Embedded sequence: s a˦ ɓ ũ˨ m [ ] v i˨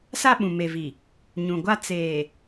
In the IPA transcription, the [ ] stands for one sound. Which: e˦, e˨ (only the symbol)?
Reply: e˨